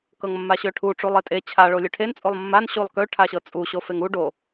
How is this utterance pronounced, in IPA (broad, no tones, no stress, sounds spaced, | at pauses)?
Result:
k ɤ ŋ mː a ɕ ø ʈʰ u ʈ͡ʂ u lˠ e tʼ e t͡ɕʰ a ɭ o lʲ ø ʈʰ e n t͡sʼ o lˠ mː a n ɕ u lˠ k ø ʈʰ a ɕ ɤ t͡sʼ u ɕ o f e ŋ u ɖ o